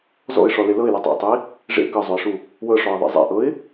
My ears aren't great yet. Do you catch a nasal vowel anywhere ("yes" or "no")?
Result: no